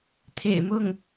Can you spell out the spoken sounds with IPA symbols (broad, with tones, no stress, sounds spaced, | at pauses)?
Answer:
t̪ʰ ḛ˨˩ ɪ̯ m ʊ˥˩ ŋ